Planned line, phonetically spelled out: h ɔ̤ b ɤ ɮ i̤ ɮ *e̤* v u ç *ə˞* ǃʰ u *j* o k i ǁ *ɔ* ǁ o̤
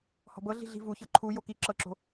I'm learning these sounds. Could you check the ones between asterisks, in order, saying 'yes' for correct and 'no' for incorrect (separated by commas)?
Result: no, no, yes, no